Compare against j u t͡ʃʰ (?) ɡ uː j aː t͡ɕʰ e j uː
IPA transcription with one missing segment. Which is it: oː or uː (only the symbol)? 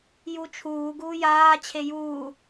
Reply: uː